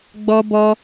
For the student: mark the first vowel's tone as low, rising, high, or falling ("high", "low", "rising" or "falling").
high